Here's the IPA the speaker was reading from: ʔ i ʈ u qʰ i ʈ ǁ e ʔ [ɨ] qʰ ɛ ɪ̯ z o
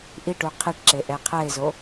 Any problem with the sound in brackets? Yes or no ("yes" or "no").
yes